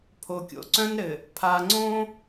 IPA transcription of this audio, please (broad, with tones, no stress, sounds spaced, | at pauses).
pʰ o˨ kʲ o̰˨ ǀ œ̃˦ n ɾ ɘ˨ | pʰ a˨ ŋ͡ǀ õ˦